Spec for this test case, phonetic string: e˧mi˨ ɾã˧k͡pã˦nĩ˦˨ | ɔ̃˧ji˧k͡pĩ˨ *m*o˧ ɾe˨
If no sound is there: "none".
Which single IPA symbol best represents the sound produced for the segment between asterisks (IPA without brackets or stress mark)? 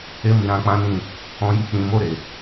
m